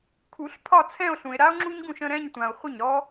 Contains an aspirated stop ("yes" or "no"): yes